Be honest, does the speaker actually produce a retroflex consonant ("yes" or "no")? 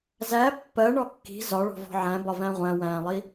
yes